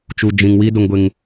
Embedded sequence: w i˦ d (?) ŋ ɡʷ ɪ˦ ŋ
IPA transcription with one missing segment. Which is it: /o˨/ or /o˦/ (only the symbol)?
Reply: o˦